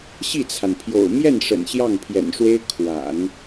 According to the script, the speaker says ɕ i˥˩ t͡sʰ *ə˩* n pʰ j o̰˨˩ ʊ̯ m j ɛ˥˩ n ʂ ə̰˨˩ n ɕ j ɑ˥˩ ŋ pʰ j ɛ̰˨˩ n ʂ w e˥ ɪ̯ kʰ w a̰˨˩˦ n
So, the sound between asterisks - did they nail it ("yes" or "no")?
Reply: no